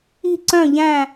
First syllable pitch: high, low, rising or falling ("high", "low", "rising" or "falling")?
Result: falling